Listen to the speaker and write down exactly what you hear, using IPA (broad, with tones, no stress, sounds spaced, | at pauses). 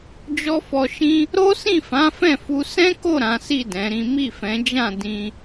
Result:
d͡ʒ ɔ˦ f ɔ˧ ʃ ĩ˦ | ɾ o˦ s ĩ˦˨ f ã˨˦ f ɛ̃˦˨ f u˧ s ɛ̃˦ k o˦˨ ɾ ã˨˦ s i˦˨ d ɛ̃˨˦ ɾ ĩ˦ m i˦˨ f ɛ̃˨˦ d͡ʒ ã˦˨ d ĩ˧